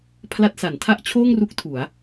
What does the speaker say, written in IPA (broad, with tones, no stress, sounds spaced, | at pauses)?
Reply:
pʰ l a˦˥ t̚ s a˩˦ n tʰ a˥˩ ʔ t͡ɕʰ oː˥˩ ŋ r u˦˥ k̚ tʰ u˩˦ a̯